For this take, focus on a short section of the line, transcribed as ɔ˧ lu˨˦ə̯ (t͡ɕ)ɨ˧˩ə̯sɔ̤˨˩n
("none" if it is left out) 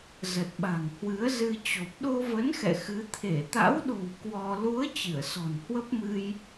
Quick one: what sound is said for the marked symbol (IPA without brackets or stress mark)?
t͡ɕ